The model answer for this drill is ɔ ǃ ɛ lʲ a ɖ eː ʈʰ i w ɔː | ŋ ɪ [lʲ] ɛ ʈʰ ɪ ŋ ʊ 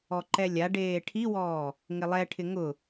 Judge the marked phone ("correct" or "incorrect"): incorrect